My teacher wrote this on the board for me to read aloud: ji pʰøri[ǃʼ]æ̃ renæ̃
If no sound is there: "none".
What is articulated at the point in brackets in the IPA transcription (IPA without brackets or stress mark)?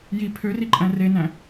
ǃʼ